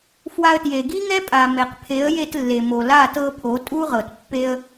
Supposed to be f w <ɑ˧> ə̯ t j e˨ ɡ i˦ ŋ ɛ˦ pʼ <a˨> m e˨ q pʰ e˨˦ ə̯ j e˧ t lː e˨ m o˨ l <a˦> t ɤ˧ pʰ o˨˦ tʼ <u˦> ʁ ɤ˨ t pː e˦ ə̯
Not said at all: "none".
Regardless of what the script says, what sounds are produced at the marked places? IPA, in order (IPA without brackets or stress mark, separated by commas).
a˧, a˨, a˦˨, u˦